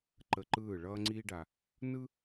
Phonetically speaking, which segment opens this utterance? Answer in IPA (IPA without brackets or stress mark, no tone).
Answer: ǃ